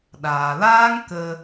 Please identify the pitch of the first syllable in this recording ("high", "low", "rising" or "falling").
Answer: low